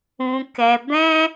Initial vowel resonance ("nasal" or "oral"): nasal